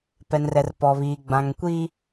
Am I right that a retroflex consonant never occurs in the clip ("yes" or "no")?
yes